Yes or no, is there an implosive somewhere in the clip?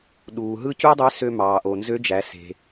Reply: yes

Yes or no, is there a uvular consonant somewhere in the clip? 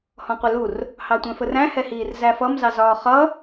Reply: yes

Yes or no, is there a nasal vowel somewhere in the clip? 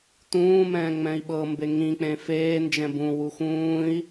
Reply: yes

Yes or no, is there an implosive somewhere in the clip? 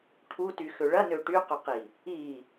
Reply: no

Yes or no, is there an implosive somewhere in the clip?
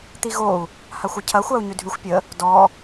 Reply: no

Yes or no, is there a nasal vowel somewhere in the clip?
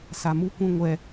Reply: yes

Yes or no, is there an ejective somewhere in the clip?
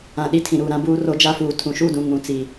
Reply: no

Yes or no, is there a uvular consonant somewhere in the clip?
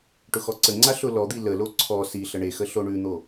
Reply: no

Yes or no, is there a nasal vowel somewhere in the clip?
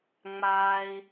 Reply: no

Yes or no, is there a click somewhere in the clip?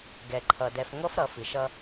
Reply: yes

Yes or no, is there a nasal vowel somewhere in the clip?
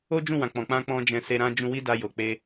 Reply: yes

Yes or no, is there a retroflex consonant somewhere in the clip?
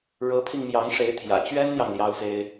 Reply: yes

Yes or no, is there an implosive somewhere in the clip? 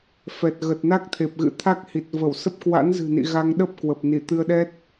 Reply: yes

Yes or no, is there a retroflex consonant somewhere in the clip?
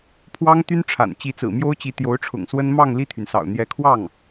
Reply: yes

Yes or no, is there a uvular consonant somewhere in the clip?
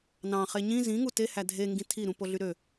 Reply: yes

